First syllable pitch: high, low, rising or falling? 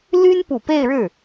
high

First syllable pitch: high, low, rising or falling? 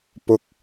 high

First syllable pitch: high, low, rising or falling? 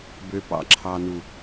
low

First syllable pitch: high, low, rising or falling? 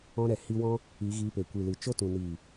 high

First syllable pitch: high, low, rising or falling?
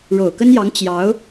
low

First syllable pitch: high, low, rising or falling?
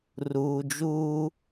low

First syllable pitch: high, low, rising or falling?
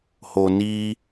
low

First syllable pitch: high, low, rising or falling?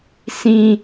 high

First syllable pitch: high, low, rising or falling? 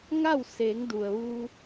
falling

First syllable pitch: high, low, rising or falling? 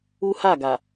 high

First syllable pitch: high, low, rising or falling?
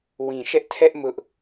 low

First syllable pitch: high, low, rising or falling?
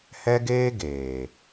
high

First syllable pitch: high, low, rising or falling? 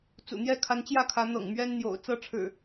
low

